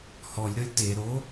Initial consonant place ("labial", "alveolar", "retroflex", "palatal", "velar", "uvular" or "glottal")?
glottal